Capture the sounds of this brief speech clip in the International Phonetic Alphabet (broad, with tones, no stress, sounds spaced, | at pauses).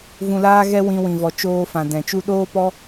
v ũ˨ l aː˦ ɣ ɛ˦ w ĩ˧ w ĩ˨ v ɔ˨ t͡ʃ oː˦ f ã˨ d ɛ̃˨ t͡ʃ u˦ ɗ oː˦ p ɔ˦